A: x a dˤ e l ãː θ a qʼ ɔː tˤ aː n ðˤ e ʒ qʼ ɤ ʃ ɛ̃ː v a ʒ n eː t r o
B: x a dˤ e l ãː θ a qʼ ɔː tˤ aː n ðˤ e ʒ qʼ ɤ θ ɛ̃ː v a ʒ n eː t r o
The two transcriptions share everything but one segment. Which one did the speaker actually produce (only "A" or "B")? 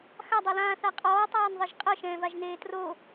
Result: A